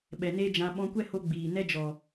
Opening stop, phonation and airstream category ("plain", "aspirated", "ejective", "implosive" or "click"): implosive